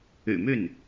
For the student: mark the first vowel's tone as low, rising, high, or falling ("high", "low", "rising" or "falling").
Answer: low